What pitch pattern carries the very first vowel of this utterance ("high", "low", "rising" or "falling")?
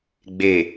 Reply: low